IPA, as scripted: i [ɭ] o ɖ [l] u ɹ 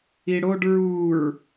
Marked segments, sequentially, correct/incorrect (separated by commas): incorrect, incorrect